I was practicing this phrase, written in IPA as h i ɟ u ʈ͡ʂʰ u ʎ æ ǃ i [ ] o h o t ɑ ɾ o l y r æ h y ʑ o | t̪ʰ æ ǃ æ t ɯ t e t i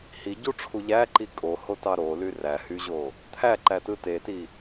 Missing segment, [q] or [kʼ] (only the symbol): kʼ